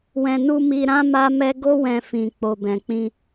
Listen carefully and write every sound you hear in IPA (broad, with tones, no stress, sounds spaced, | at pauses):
w ɛ̃˨ n u˧ m i˧ ɾ ã˦ m a˦ m ɛ˦ ɡ o˦ w ɛ̃˧ f ĩ˨ k͡p o˨ b ɛ̃˨ k͡p ĩ˧